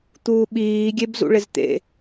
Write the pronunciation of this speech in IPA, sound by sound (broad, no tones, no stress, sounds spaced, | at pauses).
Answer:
t̪ uː ɓ iː ɡʲ e b z ṵ ɭ ɪ z t̪ ḛ